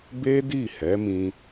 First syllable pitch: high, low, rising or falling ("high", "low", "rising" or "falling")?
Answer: high